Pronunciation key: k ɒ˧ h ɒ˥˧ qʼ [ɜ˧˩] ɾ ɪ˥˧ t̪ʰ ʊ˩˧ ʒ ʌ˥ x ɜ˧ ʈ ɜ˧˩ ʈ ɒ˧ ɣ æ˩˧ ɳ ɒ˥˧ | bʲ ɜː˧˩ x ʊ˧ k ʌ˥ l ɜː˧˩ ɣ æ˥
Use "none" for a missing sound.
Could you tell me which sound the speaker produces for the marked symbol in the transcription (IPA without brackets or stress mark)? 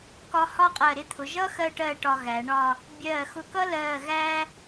ɜ˧˩